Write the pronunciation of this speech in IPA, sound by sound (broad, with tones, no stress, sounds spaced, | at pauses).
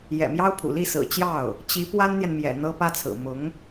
j ɛ̰˨˩ m j ɑ˥ ʊ̯ pʰ ṵ˨˩ l i˥˩ s ɹ̩˨˩ t͡ɕ j ɑ˥˩ ʊ̯ | t͡ɕ i˧˥ p w a˥ n n̪ j ɛ˨ n m j ɛ̰˨˩ n̪ ɤ˥ p ä˥ t͡sʰ ɹ̩˨˩ m ʊ˧˥ ŋ